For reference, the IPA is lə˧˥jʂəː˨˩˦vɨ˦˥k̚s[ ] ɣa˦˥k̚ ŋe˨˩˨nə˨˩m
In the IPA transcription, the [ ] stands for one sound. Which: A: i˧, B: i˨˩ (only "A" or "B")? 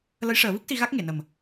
A